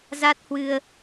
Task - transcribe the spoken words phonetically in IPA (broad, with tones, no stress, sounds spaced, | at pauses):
z a˦˥ t̚ h w ɨ˧ ə̯